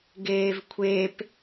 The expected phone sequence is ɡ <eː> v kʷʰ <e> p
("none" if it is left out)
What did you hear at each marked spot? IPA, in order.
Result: eː, e

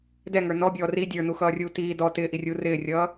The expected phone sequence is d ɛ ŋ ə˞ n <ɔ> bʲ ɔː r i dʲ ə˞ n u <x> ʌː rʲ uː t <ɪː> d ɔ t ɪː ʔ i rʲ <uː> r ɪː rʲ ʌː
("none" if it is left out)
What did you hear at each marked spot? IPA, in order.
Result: ɔ, x, iː, uː

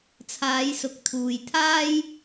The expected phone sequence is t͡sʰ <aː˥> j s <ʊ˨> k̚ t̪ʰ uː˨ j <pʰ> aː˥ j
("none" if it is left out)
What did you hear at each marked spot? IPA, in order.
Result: aː˨˧, ʊ˨˥, t̪ʰ

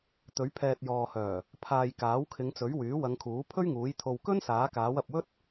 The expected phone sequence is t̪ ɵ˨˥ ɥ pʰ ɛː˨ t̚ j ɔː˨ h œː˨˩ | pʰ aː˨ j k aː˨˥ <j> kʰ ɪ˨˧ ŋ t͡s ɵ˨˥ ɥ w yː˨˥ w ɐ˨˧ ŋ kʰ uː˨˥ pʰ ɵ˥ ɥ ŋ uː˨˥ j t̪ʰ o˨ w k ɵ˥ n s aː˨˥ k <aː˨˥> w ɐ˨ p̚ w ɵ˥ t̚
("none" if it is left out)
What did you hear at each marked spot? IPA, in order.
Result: w, aː˨˥

